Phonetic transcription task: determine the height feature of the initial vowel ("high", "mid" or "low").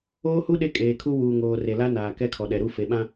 mid